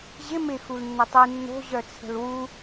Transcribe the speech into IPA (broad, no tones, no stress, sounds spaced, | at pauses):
ʑ ɪ m ɪ x u l nː ə tˤ i nː o̤ ʑ œ t͡sʰ ə̤ l w u